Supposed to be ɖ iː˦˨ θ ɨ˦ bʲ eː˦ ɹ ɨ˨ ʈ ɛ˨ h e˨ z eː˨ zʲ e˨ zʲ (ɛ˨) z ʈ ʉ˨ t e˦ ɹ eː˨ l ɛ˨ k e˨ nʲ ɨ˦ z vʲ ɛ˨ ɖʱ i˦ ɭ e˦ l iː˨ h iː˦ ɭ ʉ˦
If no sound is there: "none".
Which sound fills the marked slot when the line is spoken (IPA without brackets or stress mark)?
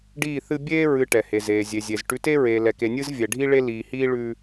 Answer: e˨